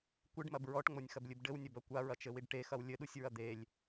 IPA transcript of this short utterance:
kʷɨɖmɐb ɹɔʈŋ͡monʲxɐblʲɨb ɖɘwnʲɐbɐ kʷaɹɐt͡ʃɘwiɖ ʈexɐw lʲɘɗusʲɹɐ d̪elʲ

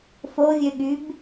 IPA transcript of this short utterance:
fovʲøɠyb

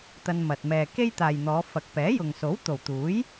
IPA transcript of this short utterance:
t̪ɐ˧nmɐ˨t̚ mɛː˨ ke˥jt̪aː˨jn̪ɔː˨˧ fɐ˨k̚pɛː˨˥jʊ˨ŋ so˨˥wt̪o˨˩wt̪uː˨˥j

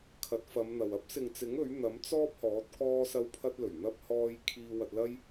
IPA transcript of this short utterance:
kʰɐ˨˥t̚fɐ˨˧mn̪ɐ˨w ɐ˥p̚sɪ˨ŋt͡sɪ˨˥ŋ ɵ˨˥ɥn̪ɐ˨˥m t͡sɔː˥p̚hɔː˨˥t̚ kɔː˧sɐ˧wpʰɐ˧t̚lɵ˨˩ɥ n̪ɐ˧p̚hɔː˧j kʰiː˧ wɐ˧t̚lɐ˥j

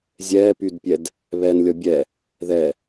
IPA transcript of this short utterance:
zʲɛpydpʲɛd | βɛnlʲɔ bʲɛ | ðɛ

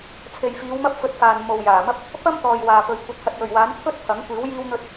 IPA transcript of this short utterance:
t͡sʰe˨jfiː˨˧w mɐ˥p̚fɵ˧t̚faː˨n mo˨wjaː˨˩mɐ˥p̚ | pɐ˥mt̪ɔː˨j waː˨pɵ˨ɥ kʷɐ˨˥t̚hɐ˨t̚jɵ˨˩ɥwaː˨˥n pʰɵ˥t̚ t̪ʰɐ˨˥ŋkʷiː˨˥w jiː˧wn̪ɵ˧t̚

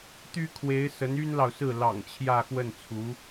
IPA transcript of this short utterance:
t̪y˥kʰwe˧˥ɪ̯sə˧˥n y˥nlɑ˨ʊ̯sɹ̩˥˩ lɑ̰˨˩ŋ t͡ɕʰjä˥˧xwə˥˩nt͡sʰu˧˥

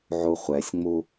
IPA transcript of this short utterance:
ʕuχʷɛsʲŋ͡mu

